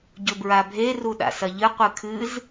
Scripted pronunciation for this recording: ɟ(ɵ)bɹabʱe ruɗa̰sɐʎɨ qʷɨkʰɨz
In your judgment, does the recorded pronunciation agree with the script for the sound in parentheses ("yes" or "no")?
yes